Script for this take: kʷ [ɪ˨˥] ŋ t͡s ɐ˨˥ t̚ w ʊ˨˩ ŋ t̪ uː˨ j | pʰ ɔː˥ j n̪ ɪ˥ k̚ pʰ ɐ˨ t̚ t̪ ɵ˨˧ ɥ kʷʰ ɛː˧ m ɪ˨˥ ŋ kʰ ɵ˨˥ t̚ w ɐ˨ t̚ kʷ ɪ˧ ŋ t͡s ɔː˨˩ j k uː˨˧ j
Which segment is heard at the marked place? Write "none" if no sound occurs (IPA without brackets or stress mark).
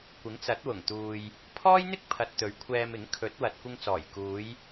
ɪ˨˥